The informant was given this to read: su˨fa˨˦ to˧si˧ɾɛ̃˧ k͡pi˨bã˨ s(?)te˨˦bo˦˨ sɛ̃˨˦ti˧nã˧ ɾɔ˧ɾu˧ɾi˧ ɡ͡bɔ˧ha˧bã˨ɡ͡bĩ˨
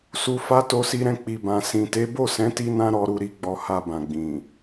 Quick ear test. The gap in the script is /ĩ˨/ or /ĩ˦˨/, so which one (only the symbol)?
ĩ˨